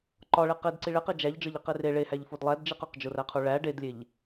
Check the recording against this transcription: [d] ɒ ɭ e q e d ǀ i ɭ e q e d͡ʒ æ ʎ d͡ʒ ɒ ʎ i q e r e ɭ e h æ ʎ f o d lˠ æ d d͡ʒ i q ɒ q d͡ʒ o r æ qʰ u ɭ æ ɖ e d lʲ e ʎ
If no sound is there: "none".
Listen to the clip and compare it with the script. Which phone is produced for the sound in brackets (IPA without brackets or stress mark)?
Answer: ǃ